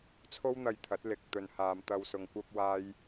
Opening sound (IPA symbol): t͡sʰ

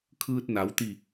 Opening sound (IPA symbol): kʰ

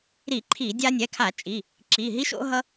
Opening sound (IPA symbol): ɾ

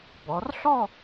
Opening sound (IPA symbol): b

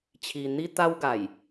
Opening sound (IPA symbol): t͡ɕʰ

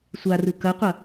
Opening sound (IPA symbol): sʷ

